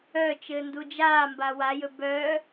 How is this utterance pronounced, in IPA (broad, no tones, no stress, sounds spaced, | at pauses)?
œ t͡ʃ ɘː n d u d͡ʒ aː m b a w a j ɵ b œ